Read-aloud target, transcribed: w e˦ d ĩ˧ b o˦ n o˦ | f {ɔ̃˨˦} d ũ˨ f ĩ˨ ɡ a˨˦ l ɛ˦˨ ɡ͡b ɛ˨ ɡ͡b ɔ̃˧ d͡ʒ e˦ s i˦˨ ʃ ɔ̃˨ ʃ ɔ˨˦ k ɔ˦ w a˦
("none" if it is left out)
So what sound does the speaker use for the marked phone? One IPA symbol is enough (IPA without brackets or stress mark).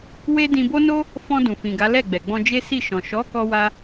ɔ̃˧